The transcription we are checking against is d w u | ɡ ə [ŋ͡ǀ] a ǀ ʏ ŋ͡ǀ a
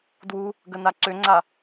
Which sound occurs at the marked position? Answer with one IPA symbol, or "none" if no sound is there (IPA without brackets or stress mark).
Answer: n